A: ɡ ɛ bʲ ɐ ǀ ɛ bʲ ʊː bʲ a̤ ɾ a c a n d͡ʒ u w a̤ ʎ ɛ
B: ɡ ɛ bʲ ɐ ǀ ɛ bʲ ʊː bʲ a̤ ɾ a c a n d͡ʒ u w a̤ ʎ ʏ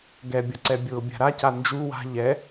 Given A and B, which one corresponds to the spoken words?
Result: A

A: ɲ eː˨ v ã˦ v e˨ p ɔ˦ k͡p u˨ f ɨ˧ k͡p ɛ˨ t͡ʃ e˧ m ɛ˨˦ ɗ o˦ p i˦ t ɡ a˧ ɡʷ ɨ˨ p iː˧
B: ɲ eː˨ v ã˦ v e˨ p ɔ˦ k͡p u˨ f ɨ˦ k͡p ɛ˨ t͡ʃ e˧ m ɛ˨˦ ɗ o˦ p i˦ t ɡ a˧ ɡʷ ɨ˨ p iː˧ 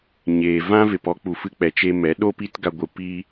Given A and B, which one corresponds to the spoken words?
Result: A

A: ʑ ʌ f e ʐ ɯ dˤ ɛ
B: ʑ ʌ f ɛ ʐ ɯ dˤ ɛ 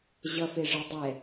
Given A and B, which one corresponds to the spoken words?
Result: A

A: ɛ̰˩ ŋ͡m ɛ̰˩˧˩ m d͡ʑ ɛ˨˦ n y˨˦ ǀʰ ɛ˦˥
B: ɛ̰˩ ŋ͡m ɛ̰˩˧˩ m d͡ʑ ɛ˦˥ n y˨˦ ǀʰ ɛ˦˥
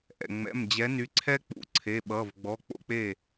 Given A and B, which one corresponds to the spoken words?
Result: A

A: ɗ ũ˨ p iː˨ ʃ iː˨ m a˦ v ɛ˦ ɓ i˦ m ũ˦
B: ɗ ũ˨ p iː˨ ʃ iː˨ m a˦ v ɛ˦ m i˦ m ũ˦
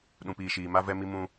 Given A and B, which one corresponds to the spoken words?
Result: B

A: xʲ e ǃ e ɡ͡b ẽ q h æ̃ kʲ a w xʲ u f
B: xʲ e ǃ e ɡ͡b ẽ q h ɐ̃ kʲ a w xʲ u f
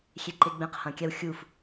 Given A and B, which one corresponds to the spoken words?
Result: B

